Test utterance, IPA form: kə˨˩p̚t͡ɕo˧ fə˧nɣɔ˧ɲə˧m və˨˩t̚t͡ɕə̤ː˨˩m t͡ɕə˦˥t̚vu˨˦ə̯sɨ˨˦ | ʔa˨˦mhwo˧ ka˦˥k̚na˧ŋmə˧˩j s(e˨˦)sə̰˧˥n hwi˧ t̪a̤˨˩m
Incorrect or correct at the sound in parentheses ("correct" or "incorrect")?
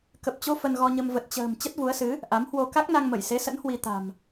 correct